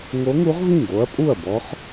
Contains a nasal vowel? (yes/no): yes